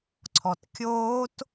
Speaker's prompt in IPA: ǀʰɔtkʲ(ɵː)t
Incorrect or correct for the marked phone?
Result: incorrect: oː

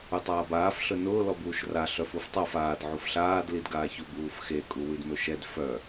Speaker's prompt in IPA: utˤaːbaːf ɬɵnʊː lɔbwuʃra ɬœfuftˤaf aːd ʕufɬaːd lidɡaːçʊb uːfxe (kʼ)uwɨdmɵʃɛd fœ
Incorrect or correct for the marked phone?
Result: correct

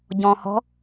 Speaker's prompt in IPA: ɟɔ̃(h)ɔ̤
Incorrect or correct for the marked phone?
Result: correct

